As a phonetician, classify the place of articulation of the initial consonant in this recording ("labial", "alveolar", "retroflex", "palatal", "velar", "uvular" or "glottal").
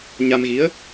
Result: palatal